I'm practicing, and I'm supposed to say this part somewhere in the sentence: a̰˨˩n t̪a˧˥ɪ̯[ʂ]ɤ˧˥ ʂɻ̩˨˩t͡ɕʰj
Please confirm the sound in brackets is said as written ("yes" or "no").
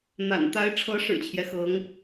no